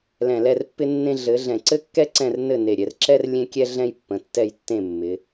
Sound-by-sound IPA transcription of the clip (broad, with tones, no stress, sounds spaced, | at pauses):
l ɛ̃˧˩ l ɛ˥˨ r pː ɪ˥ nː ẽ˥ ɮ ɘ˨˦ ɮ ɛ̃˧˩ ǀ ɘ˥ kː ɛ˥ ǀ ɛ̃˥˨ r n ɘ˥˨ n e˧˩ ɾʲ ɛ˨˦ r ǁ ɛ˥ r lʲ ẽ˥ kʲ ɛ˥ ɮ ɛ̃˥ j pː ə̃˨˦ tː ɛ˥˨ j tː ẽ˥˨ mː ɪ˨˦